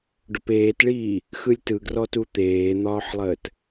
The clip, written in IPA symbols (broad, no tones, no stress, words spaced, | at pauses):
ɖʊpeːtɭiː | xɯlʲtɯɡrɔtu t̪eːn̪ɒːħlˠəːt